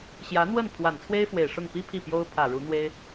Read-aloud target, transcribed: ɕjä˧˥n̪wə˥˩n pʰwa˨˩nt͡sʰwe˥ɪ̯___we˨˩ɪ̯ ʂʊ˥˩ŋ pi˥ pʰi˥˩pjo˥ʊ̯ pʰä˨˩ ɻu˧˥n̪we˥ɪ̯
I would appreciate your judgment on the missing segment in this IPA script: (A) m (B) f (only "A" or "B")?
B